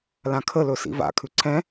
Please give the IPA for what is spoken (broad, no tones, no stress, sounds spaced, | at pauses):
l ã kʰ ə l ɵ s ḭ v a̰ kʰ ʉ ǀʰ ɛ̃